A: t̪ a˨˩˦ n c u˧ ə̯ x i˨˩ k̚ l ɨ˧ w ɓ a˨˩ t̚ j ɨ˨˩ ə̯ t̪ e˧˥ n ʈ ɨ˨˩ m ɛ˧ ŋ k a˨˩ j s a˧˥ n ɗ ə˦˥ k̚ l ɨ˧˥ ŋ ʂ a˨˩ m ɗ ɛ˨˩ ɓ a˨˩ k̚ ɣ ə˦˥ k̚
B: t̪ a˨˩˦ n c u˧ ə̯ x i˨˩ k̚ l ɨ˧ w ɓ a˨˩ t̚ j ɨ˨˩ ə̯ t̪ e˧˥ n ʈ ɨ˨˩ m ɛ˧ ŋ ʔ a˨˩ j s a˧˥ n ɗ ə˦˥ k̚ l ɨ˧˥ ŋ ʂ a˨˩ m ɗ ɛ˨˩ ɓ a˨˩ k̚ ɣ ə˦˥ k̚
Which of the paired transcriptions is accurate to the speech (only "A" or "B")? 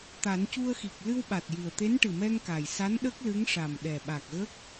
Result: A